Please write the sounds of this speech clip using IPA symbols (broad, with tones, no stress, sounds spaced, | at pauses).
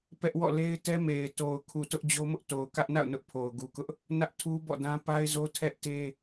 p ɛ˦ ʔ w ɔ̰˦˨ l e˦ ɪ̯ t ɛ˦ m e˨ ɪ̯ t o˨ ʊ̯ kʰ u˨ t ʊ˦ ʔ d͡ʑ o˦ m ʊ˦ ʔ t o˨ ʊ̯ k ä˦ ʔ n a̰˦˨ ʊ̯ n ʊ˦ ʔ pʰ o˨ ʊ̯ ɡ u˨ k ʊ˦ ʔ | n ä˦ ʔ tʰ u˦ b ɔ̰˦˨ d ã˦ p a˦ ɪ̯ z o˦ tʰ ɛ˦ ʔ t e˦